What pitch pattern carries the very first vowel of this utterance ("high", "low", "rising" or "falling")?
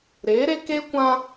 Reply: rising